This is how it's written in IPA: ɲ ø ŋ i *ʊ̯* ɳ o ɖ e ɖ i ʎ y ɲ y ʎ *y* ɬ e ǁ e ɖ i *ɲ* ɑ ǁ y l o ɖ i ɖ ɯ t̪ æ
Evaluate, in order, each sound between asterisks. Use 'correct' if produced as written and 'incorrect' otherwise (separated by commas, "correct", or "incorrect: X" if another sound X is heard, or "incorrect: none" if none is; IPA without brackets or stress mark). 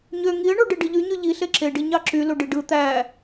incorrect: ə̯, incorrect: i, correct